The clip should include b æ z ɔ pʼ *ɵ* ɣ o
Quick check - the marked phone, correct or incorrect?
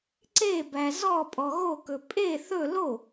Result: incorrect